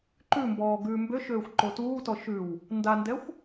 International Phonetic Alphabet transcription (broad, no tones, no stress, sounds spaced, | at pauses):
ǃ ʉ m b ɔː ɡ ʉː m b ø ʃ øː xʷ ǃ o t uː t ɔ ʃ ʉ w | n d a n d ɛ xʷ